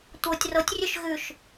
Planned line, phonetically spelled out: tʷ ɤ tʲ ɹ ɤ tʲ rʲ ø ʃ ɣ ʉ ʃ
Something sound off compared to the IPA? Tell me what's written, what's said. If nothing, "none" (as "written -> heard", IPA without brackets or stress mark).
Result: ɹ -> r